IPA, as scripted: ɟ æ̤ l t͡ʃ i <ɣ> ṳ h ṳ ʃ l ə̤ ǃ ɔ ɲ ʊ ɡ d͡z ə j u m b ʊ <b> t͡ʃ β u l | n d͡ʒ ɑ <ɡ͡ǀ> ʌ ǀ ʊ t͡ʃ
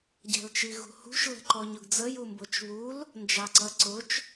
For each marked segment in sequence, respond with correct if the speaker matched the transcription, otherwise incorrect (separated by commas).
correct, incorrect, incorrect